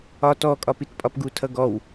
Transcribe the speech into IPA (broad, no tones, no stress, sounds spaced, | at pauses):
ɒ t ɔ kʼ ɒ p i t pʼ ɒ p ɡ u tʰ ʌ ɡ ɔ w